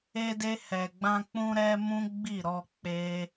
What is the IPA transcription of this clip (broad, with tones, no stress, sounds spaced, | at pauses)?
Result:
e˧ d e˧ h ɛ˨ ɡ͡b ã˧ k͡p ũ˧ ɾ ɛ˧ m ũ˦ ɡ͡b i˦˨ ɾ ɔ˧ k͡p e˦